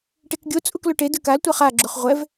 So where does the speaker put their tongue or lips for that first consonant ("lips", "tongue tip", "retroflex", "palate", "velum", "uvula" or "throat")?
retroflex